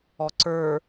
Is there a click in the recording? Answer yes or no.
yes